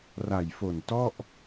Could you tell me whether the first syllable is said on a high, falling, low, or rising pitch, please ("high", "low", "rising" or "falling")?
low